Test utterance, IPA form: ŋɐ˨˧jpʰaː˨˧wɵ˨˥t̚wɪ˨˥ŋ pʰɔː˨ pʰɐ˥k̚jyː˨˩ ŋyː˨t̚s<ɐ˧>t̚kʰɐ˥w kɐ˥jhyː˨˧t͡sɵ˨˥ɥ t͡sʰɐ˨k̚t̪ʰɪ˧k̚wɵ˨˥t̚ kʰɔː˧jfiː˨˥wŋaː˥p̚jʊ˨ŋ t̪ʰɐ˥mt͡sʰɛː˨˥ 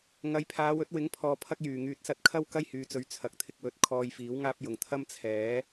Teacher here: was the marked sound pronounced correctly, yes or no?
yes